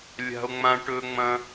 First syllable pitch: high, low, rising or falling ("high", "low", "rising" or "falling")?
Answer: high